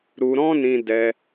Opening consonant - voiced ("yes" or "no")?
yes